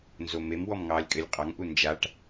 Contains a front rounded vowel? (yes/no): no